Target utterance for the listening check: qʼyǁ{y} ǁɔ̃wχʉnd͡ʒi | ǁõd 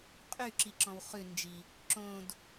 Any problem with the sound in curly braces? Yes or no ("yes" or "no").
yes